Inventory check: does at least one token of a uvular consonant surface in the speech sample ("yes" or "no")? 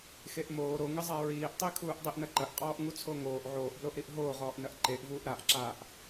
yes